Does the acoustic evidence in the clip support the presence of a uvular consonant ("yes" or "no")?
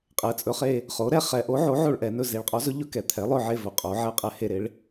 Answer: yes